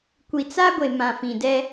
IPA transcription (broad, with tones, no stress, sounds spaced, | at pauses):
kʷ i˨ t͡s a˦ ɡʷ e˨ m ã˨ f ĩ˨ d ɛ˦